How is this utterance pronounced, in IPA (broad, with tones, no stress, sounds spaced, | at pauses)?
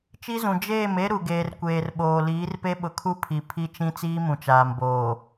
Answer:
t͡ʃ i˦ z ũ˨ d͡ʒ eː˦˨ m e˦ ɾ u˨ ɡ eː˨ r kʷ eː˨ r ɓ oː˨ l iː˨˦ r p e˦ ɓ ʊ˨ kʰ u˦ pʰ i˨ pʰ i˦ t͡ʃ ĩ˦ t͡s iː˦ m ũ˨ t͡ʃ aː˨ m b oː˨